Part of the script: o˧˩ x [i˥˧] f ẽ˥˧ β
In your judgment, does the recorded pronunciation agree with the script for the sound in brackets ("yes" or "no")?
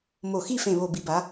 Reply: yes